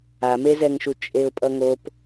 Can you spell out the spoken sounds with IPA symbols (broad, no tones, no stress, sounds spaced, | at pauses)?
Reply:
a m e z ɛ ŋ ʃ u t͡ʃʼ e ʊ̯ pʼ ʌ ŋ o p